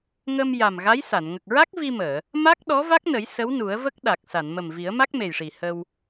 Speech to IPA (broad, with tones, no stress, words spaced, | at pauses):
ŋə˧m ja˨˩mɣa˧˥jsa˨˩˨n ŋə˨˩k̚ɹa˦˥k̚vi˧məː˨˩˨ | ma˦˥k̚ɗɔ˧˥ va˦˥k̚nə˨˩˦j sə˧˥w nu˨˩˦ə̯və˦˥k̚ ɗa˨˩k̚sa˨˩˨nmə˨˩m vi˨˩˦ə̯ma˦˥k̚me˨˩jʂi˨˩ hə˧w